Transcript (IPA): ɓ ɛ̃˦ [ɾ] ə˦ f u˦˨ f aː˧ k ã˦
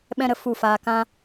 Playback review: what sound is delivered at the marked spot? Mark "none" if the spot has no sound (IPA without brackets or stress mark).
ɾ